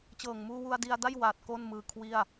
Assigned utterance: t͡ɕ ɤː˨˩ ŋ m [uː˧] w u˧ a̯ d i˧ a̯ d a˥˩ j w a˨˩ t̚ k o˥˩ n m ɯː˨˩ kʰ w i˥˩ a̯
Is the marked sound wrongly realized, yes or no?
no